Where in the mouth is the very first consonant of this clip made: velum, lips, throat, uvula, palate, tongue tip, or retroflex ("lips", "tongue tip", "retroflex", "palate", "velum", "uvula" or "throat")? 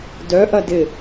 tongue tip